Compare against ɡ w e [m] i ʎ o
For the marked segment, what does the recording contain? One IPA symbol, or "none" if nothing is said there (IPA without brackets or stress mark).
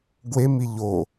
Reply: m